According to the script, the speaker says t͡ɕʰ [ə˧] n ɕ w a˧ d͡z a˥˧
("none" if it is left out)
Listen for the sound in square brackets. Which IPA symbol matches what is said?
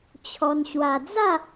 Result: ɔ˧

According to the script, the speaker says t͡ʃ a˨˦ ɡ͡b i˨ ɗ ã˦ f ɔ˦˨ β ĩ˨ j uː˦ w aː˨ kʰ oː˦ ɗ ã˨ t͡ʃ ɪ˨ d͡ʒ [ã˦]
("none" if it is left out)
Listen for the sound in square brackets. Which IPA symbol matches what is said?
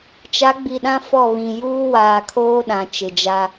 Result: a˦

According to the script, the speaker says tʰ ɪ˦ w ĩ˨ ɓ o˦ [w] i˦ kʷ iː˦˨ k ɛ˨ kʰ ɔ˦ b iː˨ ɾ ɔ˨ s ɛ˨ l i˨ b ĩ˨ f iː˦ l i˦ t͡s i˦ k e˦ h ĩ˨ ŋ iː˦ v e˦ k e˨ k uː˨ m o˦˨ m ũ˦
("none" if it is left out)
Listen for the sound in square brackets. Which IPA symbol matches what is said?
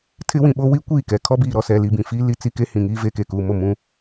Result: w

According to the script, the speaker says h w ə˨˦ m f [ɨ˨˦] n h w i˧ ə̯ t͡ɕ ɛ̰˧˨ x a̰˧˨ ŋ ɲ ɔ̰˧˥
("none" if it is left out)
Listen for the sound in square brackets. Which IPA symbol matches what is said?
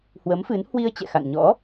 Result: ɨ˨˦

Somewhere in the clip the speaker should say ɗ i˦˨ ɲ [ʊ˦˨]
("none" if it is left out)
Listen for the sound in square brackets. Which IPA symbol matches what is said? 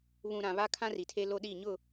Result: ʊ˦˨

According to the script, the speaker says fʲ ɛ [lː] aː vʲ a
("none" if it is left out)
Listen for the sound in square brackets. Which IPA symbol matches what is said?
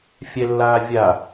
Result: lː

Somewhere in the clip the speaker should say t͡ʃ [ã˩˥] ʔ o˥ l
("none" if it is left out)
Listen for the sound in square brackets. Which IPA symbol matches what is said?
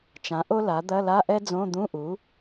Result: ã˩˥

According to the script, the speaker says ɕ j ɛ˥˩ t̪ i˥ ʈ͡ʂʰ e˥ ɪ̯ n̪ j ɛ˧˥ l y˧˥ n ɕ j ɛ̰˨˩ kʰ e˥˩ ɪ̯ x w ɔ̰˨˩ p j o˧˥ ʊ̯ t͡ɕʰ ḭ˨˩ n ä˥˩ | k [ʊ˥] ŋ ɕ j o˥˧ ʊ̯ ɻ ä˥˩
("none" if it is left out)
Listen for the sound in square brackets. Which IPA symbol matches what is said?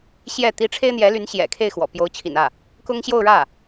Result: ʊ˥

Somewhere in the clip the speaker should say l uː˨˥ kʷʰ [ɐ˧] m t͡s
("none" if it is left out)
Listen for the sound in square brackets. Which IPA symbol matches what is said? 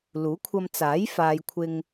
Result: ɐ˧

